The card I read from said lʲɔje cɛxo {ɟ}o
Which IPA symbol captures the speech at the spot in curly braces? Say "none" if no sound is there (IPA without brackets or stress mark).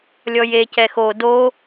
d